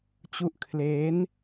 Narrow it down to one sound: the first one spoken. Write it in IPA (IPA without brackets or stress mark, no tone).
t͡ɕ